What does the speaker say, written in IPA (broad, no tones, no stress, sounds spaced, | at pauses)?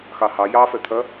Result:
x ɑ h ɑ j ɑ f ɛ t̪ʰ ɐ